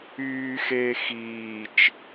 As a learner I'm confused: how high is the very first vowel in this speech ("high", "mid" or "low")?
high